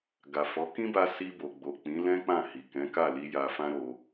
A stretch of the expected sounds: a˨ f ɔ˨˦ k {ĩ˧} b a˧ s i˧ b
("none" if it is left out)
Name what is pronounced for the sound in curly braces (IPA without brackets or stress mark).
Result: ĩ˦